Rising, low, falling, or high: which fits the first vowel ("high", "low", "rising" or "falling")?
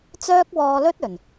high